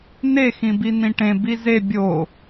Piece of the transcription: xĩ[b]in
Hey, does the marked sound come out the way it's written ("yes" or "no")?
yes